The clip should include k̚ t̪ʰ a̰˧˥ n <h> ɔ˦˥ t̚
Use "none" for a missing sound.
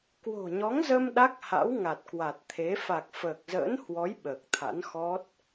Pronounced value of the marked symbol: x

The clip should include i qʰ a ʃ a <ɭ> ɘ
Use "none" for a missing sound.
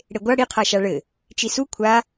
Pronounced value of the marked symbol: ɭ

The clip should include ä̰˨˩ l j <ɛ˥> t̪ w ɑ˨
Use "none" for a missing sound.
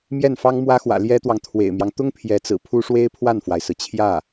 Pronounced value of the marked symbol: ɛ˥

